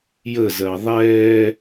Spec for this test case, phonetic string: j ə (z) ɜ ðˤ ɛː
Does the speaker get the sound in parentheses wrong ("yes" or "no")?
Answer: no